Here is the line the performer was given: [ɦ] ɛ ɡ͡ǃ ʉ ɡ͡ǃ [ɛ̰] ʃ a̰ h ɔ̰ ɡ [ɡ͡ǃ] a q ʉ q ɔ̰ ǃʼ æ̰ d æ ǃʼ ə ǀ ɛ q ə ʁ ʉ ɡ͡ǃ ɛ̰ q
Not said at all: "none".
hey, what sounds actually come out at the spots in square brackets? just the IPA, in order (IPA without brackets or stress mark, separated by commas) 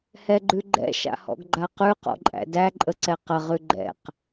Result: h, ɛ̰, ɡ͡ǃ